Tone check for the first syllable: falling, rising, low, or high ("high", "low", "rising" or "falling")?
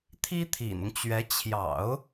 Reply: high